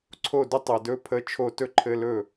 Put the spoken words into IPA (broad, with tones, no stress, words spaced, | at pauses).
ǀʰo˥˩də˥ tˤɛ˨dɵ˧˥˧pʰə˧˥˧t͡ʃʰo˥˩ tɵ˥ǃʰɘ˧˥˧lɵ˥˩